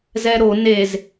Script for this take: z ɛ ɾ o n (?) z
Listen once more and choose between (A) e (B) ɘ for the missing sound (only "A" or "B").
A